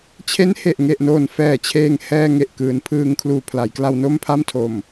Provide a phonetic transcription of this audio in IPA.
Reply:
t͡ɕʰ e˦˥ n h e˨˩ ʔ ŋ e˨˩ ʔ n oː˨˩ n f ɛː˨˩ t͡ɕʰ eː˧ ŋ h ɛː˧ ŋ e˨˩ ʔ k ɯː˩˦ n pʰ ɯː˧ ŋ kʰ l uː˨˩ pʰ l a˩˦ j k l a˧ w n o˥˩ m pʰ a˥˩ m tʰ o˨˩ m

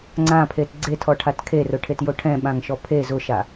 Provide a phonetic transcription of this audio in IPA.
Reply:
ŋ͡ǀ ã pʰ e t ɡ͡ǀ e tʰ ɔ ʈʰ a t kʰ e r ʊ ʈʰ e t j o ʈʰ ɛ̃ ɓ ã ŋ ʃ ɔ pʰ e z ʊ ʃ a

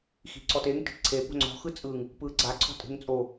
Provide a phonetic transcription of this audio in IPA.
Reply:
x i̤ ǀ ɔ t e ŋ t i̤ t ǀʰ e p o̤ ŋ͡ǀ ɔ̤ x ɯ t͡sʼ ɯ ŋ | p ɯ ɡ͡ǀ a ǀʰ ɔ̤ tʼ e̤ ŋ t͡sʼ o

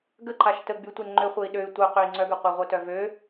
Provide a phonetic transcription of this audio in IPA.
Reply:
ɡ ə ǃ a ʃ t ə ɡ͡b y tʷ e n ŋ͡ǃ ø χʷ e i̯ ɗ ø y̯ tʷ œ q ø i̯ ŋ͡ǀ œ ɡ ʏ qʷ e ʁʷ œ t œ v ø

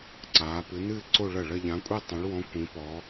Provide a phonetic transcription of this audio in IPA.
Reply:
ǀ aː˨˦ p ɨ˨˦ n ɨː˥˧ ǀ o˥˧ ɭ ɐ˥˩ ɭ ɐ˥˧ ʎ ã˨˦ kʷʼ i˥˧ tˤ ẽ˨˦ ɭ w ɔ̃˨˦ kʷ ĩ˨˦ p ɔ˨˦

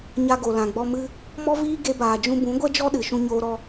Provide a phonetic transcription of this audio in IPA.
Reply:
ɲ a˦ ɡ o˨ l ã˨ ɡ͡b ɔ˧ m ɨ˦ | m ɔ˦ v iː˦ ɡ e˧ b aː˨ d͡ʒ ũ˧ b ũ˨˦ ɡʷ ɛ˦ d͡ʒ ɔ˦ ɗ ɨ˨ ʃ ũ˧ ɲ oː˧ ɾ ɔ˧

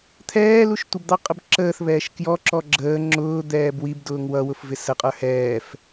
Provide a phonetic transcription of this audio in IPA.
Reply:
t̪ʰ ɛː l u ʃ tʷ ɪ b d̪ ɑ qʼ ə b ǁ əː θ β ɛː ʃ k j ɔ ǁ ɔ ɡ͡ǁ əː ŋ͡ǁ ʊː d̪ ɛː b w i b d ʊː ŋ w ʌ w ʊ f v ɪ s ə qʼ ə˞ h ɛː f

